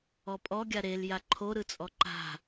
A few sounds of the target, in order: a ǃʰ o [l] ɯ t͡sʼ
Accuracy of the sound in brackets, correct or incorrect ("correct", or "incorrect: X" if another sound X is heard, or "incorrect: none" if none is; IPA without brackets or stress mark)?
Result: incorrect: ɾ